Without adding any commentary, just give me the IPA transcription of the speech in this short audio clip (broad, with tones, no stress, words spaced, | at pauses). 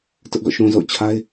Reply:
tʊ˦ʔɡɔ̰˦˨ʃũ˨zo̰˦˨ʊ̯ t͡ɕʰa˦ɪ̯